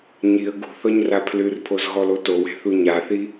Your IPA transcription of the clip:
ɲiə̯ ɡṳ θɔɲrapʰlɨrpʰoz ɣɔlotowe̤ θuɲaθi

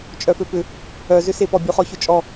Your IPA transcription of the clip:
t͡ʃʼœføpʏ | œzʏsepɔ bʲuχɔçʊt͡ʃʼɔ

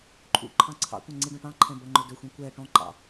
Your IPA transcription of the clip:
ǃʰṵǃʰɑ̃ ǀʰɑ̰kʷɐ̃ ŋ͡ǀiɖɔ̃ʈɑ̃ǃʰɛ̃ bɐŋ͡ǃɵdɵxʷĩ kʷɛ ʈɔ̃ǃɑ̰

